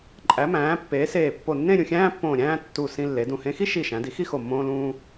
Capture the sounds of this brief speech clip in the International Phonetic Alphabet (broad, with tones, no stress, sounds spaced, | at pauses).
ǃʼ æ˩˧ m æ̃ː˩˧ pː eː˩˧ s eː˧˩ pː o˧˩ nː ẽ˥˧ ɾʲ ũ˧˩ xʲ æ̃ː˥ pː õː˧˩ ɾʲ æ̃ː˥˧ tː u˧˩ s ĩ˧ lː e˩˧ d ũ˧˩ h ẽ˧ x i˥ ʃ i˧˩ ʃ æ̃˩˧ d i˩˧ x i˥˧ x o˧˩ mː õː˧ l ũː˧